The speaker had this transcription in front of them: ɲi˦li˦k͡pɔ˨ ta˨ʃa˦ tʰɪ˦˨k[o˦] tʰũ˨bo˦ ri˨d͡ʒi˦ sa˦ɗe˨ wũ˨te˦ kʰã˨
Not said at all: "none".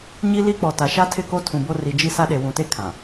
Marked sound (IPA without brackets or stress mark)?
o˦